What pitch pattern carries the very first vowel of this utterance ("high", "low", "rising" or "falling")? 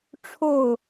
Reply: falling